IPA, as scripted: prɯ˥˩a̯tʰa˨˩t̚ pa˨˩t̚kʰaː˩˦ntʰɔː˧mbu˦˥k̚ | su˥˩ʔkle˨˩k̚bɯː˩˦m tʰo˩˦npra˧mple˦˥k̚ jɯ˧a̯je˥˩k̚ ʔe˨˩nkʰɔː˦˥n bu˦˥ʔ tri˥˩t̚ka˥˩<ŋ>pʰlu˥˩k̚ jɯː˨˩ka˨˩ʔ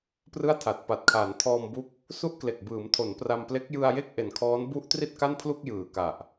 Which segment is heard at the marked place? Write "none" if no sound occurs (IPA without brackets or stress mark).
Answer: n